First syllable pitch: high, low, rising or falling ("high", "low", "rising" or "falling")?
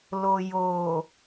low